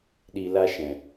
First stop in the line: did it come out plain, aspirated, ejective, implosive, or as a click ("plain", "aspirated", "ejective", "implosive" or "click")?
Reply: implosive